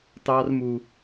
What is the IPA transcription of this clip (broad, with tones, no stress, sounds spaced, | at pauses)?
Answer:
t ɑ˦ r m u˦